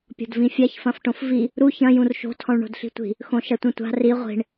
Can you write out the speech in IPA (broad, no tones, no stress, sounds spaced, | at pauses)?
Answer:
pʲ ɔ̤ d v ĩ fʲ a ç f ɐ̃ f ʈ õ f v i | ɾ u ç ɐ̃ j ũ r ʃ o̤ tʰ ɔ̃ ɭ ɳ o̤ d ɬ i̤ tʷ i̤ | x õ ʃ ɐ tʷ ĩ tʷ a̤ r i ʁʷ i̤ ɳ